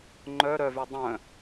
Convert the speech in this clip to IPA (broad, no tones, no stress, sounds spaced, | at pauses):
ŋ͡ǃ œ ɾ œ v y dˤ œ̃